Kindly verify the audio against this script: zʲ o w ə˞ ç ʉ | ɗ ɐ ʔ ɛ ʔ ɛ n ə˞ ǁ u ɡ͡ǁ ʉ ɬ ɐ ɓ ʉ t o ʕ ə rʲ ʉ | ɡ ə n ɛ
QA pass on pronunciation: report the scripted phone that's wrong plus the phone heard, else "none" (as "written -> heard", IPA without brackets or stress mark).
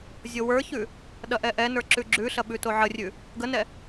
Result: u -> ʉ